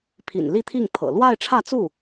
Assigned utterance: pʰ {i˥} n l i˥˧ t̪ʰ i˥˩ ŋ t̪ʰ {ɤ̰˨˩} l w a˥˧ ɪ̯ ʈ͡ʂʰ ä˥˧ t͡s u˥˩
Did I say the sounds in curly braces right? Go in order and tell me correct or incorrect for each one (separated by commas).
incorrect, correct